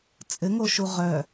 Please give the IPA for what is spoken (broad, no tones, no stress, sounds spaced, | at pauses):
t͡sʼ ɘ ŋ o ʃ u ʁ œ